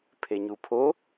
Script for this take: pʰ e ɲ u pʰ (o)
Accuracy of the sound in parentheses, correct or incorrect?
correct